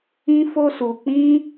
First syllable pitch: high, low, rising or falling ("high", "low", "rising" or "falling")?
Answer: high